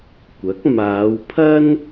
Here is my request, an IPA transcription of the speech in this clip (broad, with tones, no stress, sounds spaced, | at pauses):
kʷ ɐ˨˥ k̚ m aː˨˧ w pʰ ɐ˥ n